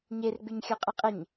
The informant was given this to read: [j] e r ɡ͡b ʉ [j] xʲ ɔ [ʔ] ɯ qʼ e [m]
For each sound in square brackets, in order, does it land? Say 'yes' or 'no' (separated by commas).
no, no, no, no